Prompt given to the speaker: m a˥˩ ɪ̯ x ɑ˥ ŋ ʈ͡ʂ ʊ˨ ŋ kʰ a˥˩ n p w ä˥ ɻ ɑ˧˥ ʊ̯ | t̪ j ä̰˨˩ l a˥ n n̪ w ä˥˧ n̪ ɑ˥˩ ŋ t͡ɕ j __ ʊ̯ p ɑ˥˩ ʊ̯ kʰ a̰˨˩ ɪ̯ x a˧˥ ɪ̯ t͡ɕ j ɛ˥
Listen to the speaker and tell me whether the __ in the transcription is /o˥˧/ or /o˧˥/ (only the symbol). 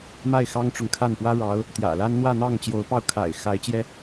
o˧˥